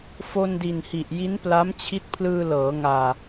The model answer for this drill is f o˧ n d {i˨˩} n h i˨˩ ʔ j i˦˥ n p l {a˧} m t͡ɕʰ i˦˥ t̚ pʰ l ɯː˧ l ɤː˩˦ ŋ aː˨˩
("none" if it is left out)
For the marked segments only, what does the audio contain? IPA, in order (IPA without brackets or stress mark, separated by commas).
i˨˩, a˦˥